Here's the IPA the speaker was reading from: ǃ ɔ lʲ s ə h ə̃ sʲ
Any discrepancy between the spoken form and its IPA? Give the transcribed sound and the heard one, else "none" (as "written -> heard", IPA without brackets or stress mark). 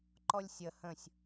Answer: s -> sʲ